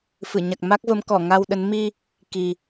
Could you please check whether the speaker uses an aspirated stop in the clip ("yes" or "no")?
no